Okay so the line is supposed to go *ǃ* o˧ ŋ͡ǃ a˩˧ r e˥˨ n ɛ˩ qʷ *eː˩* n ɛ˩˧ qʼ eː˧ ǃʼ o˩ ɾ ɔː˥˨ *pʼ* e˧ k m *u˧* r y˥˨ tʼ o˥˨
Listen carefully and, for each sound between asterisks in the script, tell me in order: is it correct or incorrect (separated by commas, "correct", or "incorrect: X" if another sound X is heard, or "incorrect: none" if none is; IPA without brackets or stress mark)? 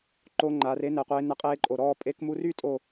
correct, incorrect: eː˩˧, correct, correct